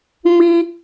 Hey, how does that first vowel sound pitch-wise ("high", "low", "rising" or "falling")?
high